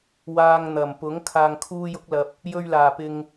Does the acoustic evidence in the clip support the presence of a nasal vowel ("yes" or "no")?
no